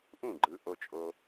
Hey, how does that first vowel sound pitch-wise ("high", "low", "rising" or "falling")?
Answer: falling